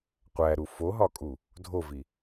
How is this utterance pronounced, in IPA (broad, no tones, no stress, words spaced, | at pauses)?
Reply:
qʷæɾu foɦɒkʼu | dʱovi